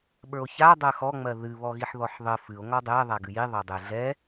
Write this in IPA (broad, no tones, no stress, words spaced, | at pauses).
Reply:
ɓə˞o̯ça dˤɜxɔ ŋ͡mɜðɨ βɔɣiħðɔħðˤə fɨo̯ ŋɔdˤɛ ðˤaɡɨji ðˤadˤeɮɛ